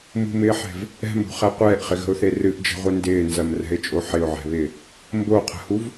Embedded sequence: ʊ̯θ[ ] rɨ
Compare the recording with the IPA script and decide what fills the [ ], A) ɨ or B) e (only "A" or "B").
B